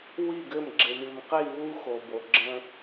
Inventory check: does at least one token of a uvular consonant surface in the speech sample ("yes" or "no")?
yes